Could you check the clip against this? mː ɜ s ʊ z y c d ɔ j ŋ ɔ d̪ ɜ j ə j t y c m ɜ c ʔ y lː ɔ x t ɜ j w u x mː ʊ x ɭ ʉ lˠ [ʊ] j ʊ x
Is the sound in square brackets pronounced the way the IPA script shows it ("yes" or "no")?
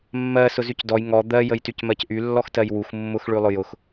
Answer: yes